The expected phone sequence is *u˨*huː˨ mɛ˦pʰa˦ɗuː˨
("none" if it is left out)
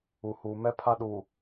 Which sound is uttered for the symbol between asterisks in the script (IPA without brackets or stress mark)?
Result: u˨